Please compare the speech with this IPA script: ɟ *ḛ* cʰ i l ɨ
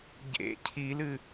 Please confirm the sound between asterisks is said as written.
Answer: yes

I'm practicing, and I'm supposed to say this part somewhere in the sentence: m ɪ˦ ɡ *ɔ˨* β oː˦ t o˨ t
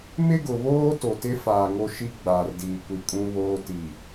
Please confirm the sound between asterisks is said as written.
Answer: no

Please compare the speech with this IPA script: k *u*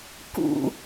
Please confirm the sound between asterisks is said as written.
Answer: no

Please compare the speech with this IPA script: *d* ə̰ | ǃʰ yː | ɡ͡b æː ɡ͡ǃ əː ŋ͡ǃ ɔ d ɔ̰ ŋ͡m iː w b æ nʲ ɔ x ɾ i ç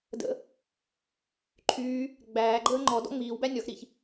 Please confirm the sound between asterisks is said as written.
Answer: yes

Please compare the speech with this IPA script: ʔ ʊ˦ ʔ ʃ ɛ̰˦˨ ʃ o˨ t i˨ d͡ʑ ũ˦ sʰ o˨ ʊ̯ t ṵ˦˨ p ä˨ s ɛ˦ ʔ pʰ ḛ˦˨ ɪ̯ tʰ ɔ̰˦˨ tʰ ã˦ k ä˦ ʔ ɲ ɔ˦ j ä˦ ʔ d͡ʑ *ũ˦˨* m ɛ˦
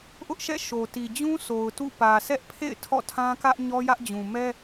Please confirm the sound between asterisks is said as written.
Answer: no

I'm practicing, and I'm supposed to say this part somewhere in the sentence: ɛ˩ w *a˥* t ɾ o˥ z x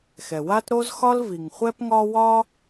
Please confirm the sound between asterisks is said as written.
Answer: yes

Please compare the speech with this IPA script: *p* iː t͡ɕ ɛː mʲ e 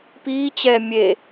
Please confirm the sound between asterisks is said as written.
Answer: yes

